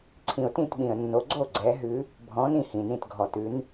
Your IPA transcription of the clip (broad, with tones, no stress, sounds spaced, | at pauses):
ǀʰ ĩ˨ ʊ̯ t ĩ˥˨ t ɓ ĩ˨ ə̯ nː o˨˦ ɡ͡ǀ o˥˨ ɡ͡ǀ ɛ˨˦ ɦ ʉ˨˦ | bʱ ɔ̃˨˦ n ĩ˥˨ h ĩ˨ n ĩ˥˨ t ɡʱ ɔ˨ t ʉ˨˦ n